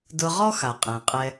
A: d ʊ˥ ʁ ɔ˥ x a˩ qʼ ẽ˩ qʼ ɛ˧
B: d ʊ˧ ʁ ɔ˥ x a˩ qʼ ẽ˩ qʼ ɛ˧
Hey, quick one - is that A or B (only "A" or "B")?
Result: B